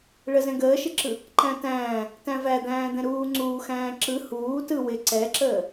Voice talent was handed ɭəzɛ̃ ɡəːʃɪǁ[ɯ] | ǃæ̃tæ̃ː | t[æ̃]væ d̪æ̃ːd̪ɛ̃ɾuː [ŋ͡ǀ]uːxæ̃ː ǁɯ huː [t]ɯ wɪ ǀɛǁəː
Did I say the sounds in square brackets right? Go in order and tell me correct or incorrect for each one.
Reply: correct, correct, correct, correct

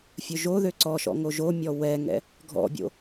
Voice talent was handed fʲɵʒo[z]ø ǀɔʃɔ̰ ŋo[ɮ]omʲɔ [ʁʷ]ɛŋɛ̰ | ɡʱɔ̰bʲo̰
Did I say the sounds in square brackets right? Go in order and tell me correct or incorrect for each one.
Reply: incorrect, incorrect, incorrect

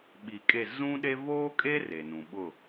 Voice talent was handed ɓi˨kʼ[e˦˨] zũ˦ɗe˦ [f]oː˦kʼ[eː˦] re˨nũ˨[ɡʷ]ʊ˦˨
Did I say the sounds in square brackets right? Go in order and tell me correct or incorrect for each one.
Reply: correct, incorrect, incorrect, incorrect

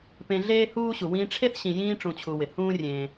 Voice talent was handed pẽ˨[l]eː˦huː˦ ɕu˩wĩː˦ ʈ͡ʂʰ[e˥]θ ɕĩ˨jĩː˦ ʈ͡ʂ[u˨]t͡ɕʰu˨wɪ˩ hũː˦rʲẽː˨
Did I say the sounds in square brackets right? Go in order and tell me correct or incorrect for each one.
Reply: incorrect, correct, incorrect

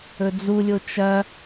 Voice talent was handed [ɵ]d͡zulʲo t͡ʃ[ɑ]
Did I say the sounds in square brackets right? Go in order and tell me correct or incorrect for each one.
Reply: correct, incorrect

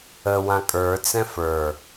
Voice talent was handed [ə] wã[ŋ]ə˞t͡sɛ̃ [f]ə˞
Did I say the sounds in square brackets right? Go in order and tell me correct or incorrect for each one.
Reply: correct, incorrect, correct

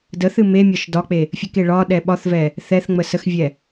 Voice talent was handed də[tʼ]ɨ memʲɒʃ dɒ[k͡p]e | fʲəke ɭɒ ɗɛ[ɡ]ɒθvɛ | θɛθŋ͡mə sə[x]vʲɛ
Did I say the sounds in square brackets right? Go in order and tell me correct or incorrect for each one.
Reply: incorrect, correct, incorrect, correct

